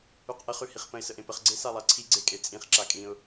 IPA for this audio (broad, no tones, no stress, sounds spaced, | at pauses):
ʉ q ʔ ə χ ʉ h i χ p ə̃ ɪ̯ s ə ʔ ẽ p ə χ ɡ͡ǀ e s a lˠ a ǀʰ i ɡ͡ǀ e kʼ e t͡sʼ ĩ χ ǁ a kʼ ĩ ʊ̯